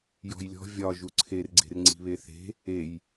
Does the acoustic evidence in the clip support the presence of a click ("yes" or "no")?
yes